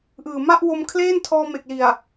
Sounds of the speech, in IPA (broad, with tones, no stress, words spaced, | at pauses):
ʔɯː˨˩ ma˥˩ʔwo˧m kʰleː˥˩ntʰɔː˧ me˨˩k̚li˨˩a̯